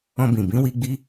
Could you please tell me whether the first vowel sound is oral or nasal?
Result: nasal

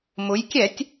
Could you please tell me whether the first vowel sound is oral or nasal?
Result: oral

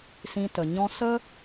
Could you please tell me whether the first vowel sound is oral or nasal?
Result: nasal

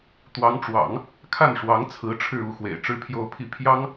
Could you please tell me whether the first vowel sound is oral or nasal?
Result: oral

